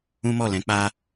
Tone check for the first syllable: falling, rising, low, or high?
high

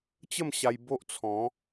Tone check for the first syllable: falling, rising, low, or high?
falling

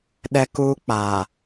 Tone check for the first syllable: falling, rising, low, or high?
high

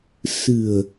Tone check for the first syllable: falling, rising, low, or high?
low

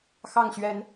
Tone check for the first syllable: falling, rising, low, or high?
falling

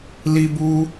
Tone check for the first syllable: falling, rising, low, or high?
high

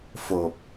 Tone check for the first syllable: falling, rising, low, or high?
low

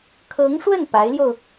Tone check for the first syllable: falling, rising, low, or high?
rising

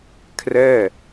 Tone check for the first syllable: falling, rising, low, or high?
falling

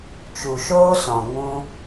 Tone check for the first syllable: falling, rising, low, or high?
low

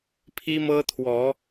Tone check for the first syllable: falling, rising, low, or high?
high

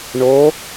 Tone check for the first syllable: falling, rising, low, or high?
rising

